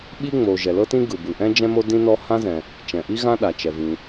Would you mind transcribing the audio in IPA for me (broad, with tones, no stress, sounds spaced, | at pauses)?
ɓ i˥ ŋ͡m o˩ ʒ ɛ˩ l ɤ˥ t ĩ˥ ɡ ɯ˩ b ɯ˩ ʔ ɛ̃˥ d͡ʒ ɛ̃˥ m o˥ d ĩ˥ n ɔ˥ h ã˥ z ɛ̃˩ | t͡ʃ ɛ̃˩ ʔ i˥ ɣ ã˥ ɗ a˩ t͡ʃ ɛ˩ v ĩ˩